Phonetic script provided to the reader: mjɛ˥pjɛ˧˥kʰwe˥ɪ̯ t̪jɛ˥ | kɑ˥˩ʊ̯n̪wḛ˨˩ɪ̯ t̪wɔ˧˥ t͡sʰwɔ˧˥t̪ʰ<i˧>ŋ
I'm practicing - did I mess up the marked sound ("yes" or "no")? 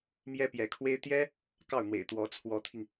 no